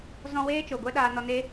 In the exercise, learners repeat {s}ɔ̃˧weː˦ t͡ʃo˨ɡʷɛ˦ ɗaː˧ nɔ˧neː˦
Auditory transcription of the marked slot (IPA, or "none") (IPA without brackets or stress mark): z